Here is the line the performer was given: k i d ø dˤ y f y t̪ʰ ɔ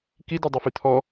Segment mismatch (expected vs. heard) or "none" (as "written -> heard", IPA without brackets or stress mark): none